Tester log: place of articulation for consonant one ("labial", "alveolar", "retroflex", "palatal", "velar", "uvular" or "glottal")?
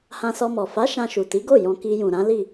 glottal